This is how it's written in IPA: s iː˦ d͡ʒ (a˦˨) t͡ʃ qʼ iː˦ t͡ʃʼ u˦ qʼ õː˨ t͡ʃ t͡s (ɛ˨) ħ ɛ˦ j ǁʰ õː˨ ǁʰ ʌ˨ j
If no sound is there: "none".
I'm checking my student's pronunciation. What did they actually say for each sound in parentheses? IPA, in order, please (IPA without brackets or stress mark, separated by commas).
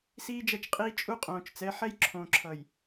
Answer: ɐ˦˨, ɛ˨˦